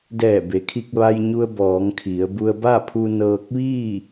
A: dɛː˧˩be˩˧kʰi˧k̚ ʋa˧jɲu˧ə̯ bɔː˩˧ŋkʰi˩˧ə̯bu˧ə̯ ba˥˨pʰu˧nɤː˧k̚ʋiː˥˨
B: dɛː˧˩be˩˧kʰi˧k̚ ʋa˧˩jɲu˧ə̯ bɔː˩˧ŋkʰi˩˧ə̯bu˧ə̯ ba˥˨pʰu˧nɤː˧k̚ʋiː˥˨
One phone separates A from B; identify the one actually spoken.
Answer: A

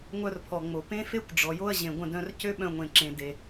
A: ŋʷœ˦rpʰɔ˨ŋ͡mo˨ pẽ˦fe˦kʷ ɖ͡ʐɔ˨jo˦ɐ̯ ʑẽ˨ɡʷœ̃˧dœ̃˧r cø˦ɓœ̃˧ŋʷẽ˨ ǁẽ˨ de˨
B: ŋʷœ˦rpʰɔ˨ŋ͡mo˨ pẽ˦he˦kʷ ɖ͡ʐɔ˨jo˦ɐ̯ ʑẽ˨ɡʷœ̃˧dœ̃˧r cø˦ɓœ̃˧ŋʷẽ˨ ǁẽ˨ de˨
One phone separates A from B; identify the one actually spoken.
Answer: A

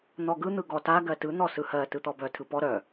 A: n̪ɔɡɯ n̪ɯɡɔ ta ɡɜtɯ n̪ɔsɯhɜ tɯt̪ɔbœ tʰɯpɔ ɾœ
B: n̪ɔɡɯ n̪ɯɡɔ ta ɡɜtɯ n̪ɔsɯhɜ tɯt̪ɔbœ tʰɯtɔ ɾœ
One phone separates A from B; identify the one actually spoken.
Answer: A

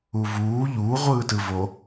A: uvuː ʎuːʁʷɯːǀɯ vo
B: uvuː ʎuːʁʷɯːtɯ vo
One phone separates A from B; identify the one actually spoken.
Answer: B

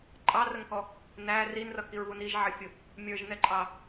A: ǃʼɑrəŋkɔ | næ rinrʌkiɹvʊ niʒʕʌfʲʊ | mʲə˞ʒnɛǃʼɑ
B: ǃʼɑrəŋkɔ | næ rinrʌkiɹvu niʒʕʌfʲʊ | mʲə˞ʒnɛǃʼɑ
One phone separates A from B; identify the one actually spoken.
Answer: B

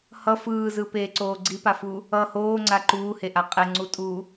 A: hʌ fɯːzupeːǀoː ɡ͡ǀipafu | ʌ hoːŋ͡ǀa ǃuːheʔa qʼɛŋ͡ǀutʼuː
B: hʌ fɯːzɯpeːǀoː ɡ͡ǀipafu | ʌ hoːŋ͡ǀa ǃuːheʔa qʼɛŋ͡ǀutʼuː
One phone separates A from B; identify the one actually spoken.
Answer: B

